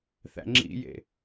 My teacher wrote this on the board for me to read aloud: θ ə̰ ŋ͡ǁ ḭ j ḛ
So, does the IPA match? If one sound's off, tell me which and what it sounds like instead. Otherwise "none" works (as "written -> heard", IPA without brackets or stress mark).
ə̰ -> æ̰